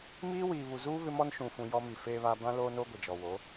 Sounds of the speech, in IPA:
m iː˦ w iː˨ β u˨ z uː˦ β ɪ˦ m ɔ˦ n ʃ ũ˨ f ũ˨ j ɔ˦ m i˨ f eː˦ β a˦ b ã˦ l oː˦ n o˦ ɡʷ ɪ˨ d͡ʒ ɔ˨ w o˨˦

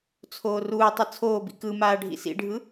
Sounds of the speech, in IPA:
t͡sʰ oː r uː tˤ ɯ t͡sʰ oː b ḭ k ɯ m aː ɖʱ ḭ s ḭ ɖʱ ɯ

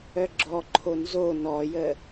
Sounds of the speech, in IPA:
œ ɡ͡ǁ ɔ ǃʰ o n z o n ɔ j ə

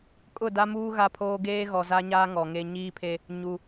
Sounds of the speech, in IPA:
kʼ ʊ˦˨ d a˦ m uː˦ ɣ a˦ pʰ oː˦ ɡ eː˦ ɣ ɔ˨ z a˦ ɲ aː˦ ŋ ɔ˨ ŋ e˦ ɲ iː˦ pʰ e˦ | ɲ u˨

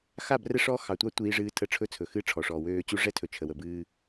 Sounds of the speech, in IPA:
x a˦˨ b r ɛ˦ ʂ ɔ˦ x ɑ˨ tʷ ɑ˦ tʷ iː˦ ʐ ɨː˦ tʰ ə˦˨ ʈ͡ʂʰ ɵ˦ t͡sʰ ɵ˨ x ɨ˦ ʈ͡ʂʰ ɔ˨ ʂ ɔː˨ w øː˦ t͡ɕ u˦ ʐ ɛ˦ tʰ ɵ˨ t͡ʃʰ ə˨ w ə˨ b ɨː˦

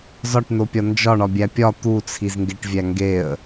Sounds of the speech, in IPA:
z ɒ ʈ n o pʲ ɒ n d͡ʒ ɒ ɳ ɒ bʲ æ pʲ ɒ t̪ u t͡sʰ i z ŋ ɡ e ʈ vʲ æ ŋ ɡ e ə̯

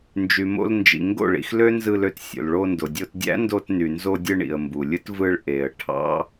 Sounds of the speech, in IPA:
n d͡ʒ y˨ m o̰˧ l n d͡ʒ ḭ˨ ŋ ɡ o̰˦˨ ɭ ḭ˧ x l ø˦ n z ɯ˧ l ø˧ t sʲ o̰˨ l ɭ o˧ n d o˨ dʲ o˧ t dʲ æ̰˦ n d o˧ t n y˨ n z o˧ dʲ ɯ˧ ɳ ḭ˨ ə̯ m b u˨ lʲ ɯ˦ t v ɯ˧ ɭ ʔ e˨ ə̯ ʈʰ ɑ̰˦

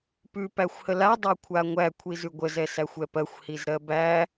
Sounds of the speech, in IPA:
p ʉ p æ xʷ h ə l a dˤ a kʷʰ a ŋʷ æ kʷʰ i z ʉ ɡʷ ə z ɛ s æ xʷ ɛ p ɜ xʷ h i z ɾ ɜ b æ

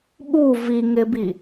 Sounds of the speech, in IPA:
ɓ u v i ŋ ɪ b i

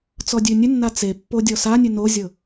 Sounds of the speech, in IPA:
t͡s ɔ dʲ ʉ nʲ ʉ nː a t͡s e pː o dʲ ɔ s a nʲ ʉ n o zʲ ɤ

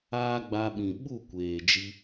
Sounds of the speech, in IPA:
aː˦ ɡ͡b a˧ ɓ ĩ˨ ɓ u˦˨ kʷ eː˨ d͡ʒ i˧

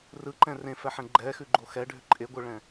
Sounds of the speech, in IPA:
r ɯ ǃ ɛ̃ r ẽ f ɛ ħ ɛ̃ ɡ͡ǃ ɛ x ʉ ɡ͡ǃ o x ɛ ɖʱ ʏ ǃʼ e ɡʷ ɯ ɭ ɛ̃

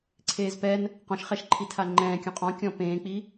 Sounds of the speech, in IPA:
ǀʰ eː z p ɛ n | q ɔ̃ ʃ χ ɛ ʃ ǃʰ i tʰ a ŋ͡ǃ ɛ̃ː kʲ ũ qʼ ɔ̃ kʲ ɔ̃ p ẽː k͡p i

